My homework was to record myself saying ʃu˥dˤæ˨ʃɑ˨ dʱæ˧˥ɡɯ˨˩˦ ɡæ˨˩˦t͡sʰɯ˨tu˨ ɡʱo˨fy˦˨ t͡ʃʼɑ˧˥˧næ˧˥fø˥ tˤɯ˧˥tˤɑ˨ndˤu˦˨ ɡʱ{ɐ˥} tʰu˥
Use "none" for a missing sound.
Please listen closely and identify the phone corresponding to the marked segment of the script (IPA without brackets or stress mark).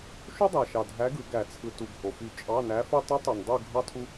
ɑ˥